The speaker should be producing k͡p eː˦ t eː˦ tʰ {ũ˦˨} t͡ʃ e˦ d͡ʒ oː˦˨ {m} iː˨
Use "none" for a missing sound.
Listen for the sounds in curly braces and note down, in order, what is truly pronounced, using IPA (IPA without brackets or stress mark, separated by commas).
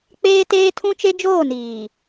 ũ˦, n